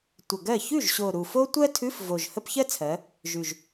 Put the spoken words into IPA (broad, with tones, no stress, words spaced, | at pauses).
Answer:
tʷə˨˩ɡɜ˥˩ çʉ˥˩ʒɕo˨˩ ɾu˨˩fo˥ tʷɜ˥tʰʉ˧˥˧f vo˨˩ʒhə˥p çɜ˥t͡sʰɜ˩˧ | ʒʉ˨˩ʒ